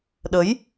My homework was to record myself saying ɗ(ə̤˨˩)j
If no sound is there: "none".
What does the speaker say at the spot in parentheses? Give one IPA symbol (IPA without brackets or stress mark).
ə˨˦